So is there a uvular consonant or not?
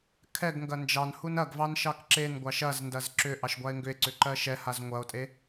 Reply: no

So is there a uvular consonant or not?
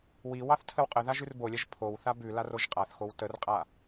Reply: yes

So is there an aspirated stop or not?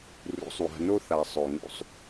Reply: no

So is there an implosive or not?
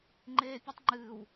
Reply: no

